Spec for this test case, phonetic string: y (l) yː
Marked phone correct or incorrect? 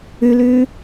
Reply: correct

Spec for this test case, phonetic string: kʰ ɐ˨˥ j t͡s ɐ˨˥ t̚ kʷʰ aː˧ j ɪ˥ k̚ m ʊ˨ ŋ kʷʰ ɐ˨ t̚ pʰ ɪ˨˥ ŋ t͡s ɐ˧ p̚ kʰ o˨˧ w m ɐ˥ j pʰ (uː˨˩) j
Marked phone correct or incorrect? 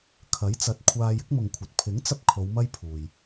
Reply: incorrect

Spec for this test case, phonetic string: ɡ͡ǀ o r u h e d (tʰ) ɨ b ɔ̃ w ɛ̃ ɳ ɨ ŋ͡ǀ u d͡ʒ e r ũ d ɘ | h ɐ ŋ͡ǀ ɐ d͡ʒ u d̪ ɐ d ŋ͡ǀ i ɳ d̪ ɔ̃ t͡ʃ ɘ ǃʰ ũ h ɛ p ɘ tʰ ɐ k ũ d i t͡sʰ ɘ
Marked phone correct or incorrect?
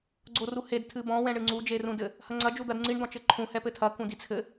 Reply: correct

